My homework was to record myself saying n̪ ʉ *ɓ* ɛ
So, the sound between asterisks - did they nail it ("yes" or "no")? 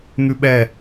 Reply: yes